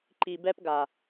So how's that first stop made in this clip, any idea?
click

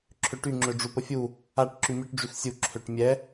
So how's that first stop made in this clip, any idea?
click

